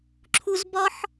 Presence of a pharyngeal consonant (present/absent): present